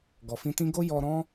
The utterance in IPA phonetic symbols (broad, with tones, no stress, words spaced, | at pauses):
ɡɔ˨ fĩ˧tĩ˦ ɡo˦jɔ˧ɾɔ̃˦